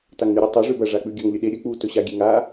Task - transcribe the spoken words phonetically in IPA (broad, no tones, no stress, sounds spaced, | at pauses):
t a ŋ n ʉ ɾʲ ʉ tˤ ɵ ʐ ʉ b ɐ ʐ a k͡p ʉ ɡʲ ɵ ŋ lʲ ɵ ɗ e ɾʲ ɵ k͡p u t ɵ ɕ a ɡʲ e ŋ a